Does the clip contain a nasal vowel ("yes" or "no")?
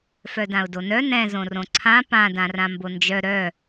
yes